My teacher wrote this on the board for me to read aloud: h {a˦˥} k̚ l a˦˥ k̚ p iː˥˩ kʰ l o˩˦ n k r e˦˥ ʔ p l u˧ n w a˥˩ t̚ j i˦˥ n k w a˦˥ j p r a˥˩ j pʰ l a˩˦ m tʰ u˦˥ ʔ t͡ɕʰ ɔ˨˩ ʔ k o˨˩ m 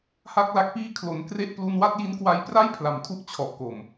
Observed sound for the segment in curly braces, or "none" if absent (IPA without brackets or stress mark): a˥˩